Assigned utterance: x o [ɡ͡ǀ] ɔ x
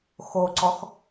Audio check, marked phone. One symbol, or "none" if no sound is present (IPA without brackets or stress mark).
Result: ǀ